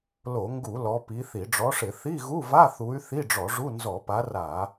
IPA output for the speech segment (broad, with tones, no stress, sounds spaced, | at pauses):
l o˧˩˧ ŋ ɡ u˧˩˧ l ɔ˨˦ p i˨˦ θ i˧˩˧ ɖ͡ʐ ɔ˨˦ ʂ ɪ˧˩˧ θ i˧˥˧ ɣ u˧˥˧ v a˧˥˧ θ u˨˦ y̯ θ i˧˥˧ ɖ͡ʐ ɔ˧˩˧ ʐ u˧˥˧ n z ɔ˧˩˧ p a˨˦ r a˧˩˧